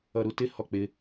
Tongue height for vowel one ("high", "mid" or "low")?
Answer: mid